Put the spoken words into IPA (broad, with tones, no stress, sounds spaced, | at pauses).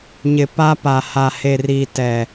ɲ ɪ˨ p aː˦ p a˨ h a˨ h e˨ r iː˨ t ɛ˨